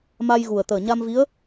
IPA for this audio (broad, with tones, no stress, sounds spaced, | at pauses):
m a˧ j ɣ u˨˩ ə̯ t̪ əː˨˩ ɲ a˧ m v i˧˥ ə̯